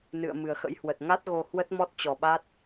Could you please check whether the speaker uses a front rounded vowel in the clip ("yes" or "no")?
no